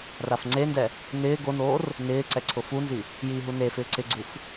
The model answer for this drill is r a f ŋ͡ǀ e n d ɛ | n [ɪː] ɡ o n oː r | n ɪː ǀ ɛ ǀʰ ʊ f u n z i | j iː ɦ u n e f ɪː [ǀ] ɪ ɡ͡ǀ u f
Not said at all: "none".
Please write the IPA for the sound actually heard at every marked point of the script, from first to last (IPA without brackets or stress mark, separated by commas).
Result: ɪː, ǀ